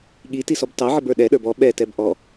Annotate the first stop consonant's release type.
implosive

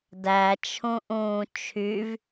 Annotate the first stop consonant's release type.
plain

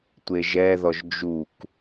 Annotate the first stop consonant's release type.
plain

